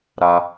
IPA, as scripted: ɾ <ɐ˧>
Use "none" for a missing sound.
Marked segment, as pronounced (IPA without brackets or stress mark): a˧